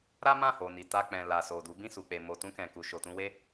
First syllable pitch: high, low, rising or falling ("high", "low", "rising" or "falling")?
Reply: high